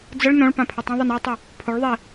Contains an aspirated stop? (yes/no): yes